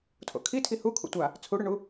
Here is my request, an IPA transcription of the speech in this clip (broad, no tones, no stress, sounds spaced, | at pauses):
tʰ o̰ kʰ i tʰ i h u kʰ ṵ tʷ a | t͡sʰ u ɽ ʏ ɳ u